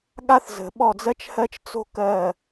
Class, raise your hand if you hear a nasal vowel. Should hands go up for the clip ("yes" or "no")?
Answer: no